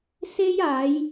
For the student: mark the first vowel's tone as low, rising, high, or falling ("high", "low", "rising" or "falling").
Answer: high